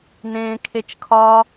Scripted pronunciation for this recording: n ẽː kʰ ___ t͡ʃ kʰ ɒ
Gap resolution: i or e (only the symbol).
e